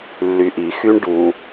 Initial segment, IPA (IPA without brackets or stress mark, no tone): lː